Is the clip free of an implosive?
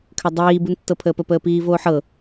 yes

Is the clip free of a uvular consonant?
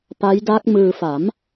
yes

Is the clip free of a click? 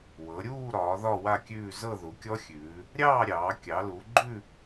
no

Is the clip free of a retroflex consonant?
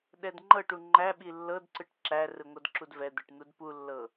no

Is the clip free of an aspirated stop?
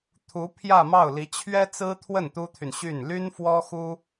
no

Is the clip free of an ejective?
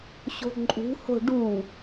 no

